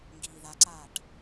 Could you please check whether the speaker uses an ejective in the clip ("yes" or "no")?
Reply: no